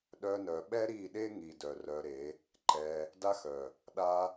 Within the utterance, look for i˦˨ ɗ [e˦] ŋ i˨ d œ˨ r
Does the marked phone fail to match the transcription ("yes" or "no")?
no